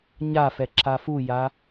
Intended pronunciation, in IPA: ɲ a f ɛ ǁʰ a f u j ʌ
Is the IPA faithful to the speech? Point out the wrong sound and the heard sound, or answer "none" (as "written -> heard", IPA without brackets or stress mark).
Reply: ʌ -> a